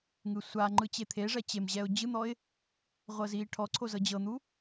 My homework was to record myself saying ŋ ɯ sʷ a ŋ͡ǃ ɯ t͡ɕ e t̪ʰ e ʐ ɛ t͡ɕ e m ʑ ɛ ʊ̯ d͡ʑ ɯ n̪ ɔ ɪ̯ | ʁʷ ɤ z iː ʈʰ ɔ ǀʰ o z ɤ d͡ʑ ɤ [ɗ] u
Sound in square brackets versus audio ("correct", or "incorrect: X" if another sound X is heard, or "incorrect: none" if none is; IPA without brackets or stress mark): incorrect: n̪